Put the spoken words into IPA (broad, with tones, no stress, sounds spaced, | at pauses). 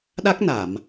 ɗ a˦˥ k̚ n a˨˩˨ m